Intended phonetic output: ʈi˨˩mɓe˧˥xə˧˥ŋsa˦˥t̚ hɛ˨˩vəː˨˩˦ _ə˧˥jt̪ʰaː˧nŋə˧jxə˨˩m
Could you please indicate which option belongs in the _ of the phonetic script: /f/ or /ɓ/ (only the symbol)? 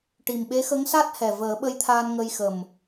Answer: ɓ